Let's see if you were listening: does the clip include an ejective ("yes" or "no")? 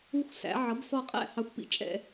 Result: yes